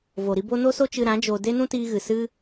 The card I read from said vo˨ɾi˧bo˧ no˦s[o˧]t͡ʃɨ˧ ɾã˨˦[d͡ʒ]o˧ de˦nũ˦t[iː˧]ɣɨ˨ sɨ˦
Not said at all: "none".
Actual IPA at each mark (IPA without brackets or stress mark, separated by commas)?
o˦, d͡ʒ, iː˧